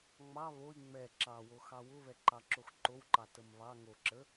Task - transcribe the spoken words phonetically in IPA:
ŋ͡m ɑ β o i̯ ŋ͡m ɛ ǁ ɑ w o x ɑ w ʊ β ɛ ǃ ɑ ǁ o x ǃ o w ǃ ɑ t ə m β ɑ ŋ o ǁ ə

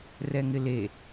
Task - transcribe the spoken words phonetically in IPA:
r ɛ ŋ ɪ l e

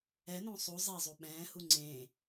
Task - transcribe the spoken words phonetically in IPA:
ɛ n õ sˤ u zˤ e zˤ u ɓ ɛ̃ː h u ŋ͡ǀ ẽ

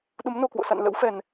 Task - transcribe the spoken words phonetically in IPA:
ɗ u˨˦ m n o˨˩ k w o̰˧˨ s a̰˧˨ n l ə̰˧˥ w f ɛ˨˩ n

